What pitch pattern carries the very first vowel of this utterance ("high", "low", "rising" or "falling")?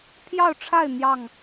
falling